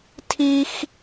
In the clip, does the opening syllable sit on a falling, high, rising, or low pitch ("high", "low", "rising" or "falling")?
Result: high